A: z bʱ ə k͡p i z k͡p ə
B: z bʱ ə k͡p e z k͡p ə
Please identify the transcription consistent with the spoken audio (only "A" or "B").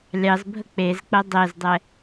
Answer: B